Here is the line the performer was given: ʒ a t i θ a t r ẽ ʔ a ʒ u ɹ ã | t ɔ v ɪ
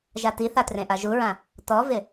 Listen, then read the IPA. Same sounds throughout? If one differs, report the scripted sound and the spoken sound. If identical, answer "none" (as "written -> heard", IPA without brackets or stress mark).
none